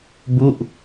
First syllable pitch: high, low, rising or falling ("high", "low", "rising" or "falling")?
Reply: falling